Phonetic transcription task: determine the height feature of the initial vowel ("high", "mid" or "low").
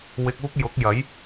high